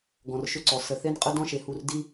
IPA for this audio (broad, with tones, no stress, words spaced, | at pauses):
ɡɔ̃˨rʃʏ˦ǀɔ˨ sə˨θe˦nqʼə˦ dɔ̃˦ʃe˨hu˨r di˦